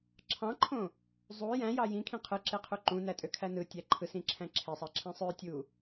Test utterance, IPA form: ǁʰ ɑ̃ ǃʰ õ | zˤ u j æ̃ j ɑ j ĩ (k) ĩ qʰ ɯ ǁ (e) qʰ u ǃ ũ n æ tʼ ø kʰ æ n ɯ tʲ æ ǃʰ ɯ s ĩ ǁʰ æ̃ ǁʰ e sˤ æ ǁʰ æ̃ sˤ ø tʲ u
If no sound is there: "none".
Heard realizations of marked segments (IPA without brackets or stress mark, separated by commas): kʰ, e